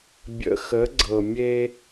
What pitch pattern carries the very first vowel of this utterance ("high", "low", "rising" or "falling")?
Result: low